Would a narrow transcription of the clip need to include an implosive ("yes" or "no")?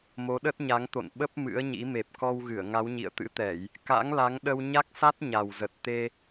yes